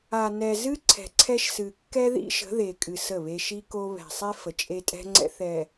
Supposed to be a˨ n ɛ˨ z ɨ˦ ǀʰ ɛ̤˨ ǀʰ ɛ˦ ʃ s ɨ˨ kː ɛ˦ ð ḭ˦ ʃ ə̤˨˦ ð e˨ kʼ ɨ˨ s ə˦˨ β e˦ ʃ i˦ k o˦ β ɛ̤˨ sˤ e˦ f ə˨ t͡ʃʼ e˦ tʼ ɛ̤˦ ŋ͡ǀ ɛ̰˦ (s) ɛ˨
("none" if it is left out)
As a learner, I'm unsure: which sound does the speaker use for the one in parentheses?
θ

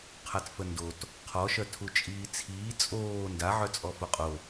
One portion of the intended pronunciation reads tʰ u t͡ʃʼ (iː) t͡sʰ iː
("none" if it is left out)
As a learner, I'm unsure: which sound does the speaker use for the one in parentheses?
iː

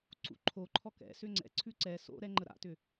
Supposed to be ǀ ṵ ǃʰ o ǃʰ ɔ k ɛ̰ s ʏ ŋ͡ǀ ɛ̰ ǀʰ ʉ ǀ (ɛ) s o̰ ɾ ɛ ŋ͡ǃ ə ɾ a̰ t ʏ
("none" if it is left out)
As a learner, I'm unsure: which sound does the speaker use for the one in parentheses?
ɛ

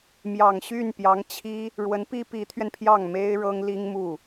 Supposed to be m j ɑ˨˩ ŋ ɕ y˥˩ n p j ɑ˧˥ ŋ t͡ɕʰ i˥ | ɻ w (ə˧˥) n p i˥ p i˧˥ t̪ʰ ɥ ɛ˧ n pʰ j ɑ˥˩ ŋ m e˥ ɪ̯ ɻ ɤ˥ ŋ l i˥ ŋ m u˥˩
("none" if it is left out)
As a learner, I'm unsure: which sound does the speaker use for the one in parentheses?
ə˧˥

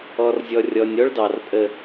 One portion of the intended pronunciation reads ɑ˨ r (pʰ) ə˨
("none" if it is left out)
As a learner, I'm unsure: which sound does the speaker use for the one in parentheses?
pʼ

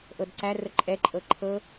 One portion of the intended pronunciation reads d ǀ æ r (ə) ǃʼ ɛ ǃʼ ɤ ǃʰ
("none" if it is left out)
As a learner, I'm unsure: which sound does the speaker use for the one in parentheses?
ə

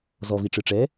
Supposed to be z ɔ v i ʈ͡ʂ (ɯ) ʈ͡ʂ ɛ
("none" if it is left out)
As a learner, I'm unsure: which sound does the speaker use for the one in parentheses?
ɯ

